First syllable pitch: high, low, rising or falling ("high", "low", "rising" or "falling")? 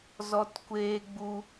high